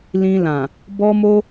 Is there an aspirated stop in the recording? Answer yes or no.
no